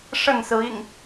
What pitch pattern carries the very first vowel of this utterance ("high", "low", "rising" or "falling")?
falling